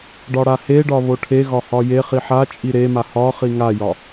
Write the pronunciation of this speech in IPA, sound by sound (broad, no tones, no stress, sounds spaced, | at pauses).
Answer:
ɖ ɒ ɽ a h e ɖ ɒ β o ʈʰ e ɣ ɒ h ɒ j e χ i ħ a t͡ʃʼ i ɾ e m a h ɒ χ i ŋ a j ɒ